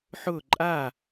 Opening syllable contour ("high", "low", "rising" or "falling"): falling